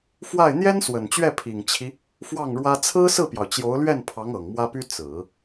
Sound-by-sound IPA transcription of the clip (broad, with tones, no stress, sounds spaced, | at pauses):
f w a˥˩ ɪ̯ n̪ j ɛ˥ n s w ə˨˩ n t͡ɕ ɥ ɛ˥˩ pʰ i˨˩ ŋ t͡ɕʰ i˦ | f w ɑ˥˩ ŋ ɻ w ä˥ t͡sʰ ɹ̩˥ s ɹ̩˥˩ p j ɑ˩ ʊ̯ t͡ɕ j o˧˥ ʊ̯ l ɥ ɛ˥˩ n pʰ ɑ˧˥ ŋ ɤ˨˩ ŋ m w ä˥ p y˥ t͡s ɹ̩˨˩˦